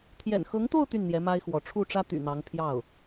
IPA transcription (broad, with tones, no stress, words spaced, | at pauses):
t̪ʰjɛ̰˨˩nxɤ˧˥ŋt̪o˥˧ʊ̯ t̪y˥˩nn̪jɛ˧˥ ma˥ɪ̯xwɔ˧˥ ʈ͡ʂʰu˥˩ʈ͡ʂä˥t̪y̰˨˩ n̪ɑ˧˥ŋpʰjɑ˥˩ʊ̯